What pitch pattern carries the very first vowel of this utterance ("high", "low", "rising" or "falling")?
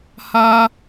high